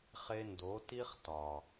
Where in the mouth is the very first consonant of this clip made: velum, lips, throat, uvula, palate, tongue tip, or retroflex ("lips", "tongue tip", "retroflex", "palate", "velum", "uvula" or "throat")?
uvula